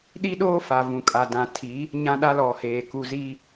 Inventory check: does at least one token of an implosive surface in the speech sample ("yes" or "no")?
yes